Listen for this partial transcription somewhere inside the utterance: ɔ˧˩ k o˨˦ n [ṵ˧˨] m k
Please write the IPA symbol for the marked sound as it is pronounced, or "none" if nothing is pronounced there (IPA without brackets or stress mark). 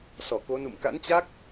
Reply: ṵ˧˨